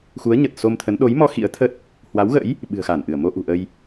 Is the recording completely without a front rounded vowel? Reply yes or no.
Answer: yes